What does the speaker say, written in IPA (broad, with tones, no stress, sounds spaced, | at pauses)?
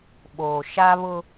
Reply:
ɓ oː˨ ʃ a˦ β ʊ˦